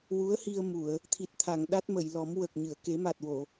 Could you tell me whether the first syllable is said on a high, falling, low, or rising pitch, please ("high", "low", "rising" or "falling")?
rising